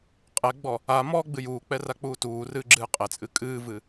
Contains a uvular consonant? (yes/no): yes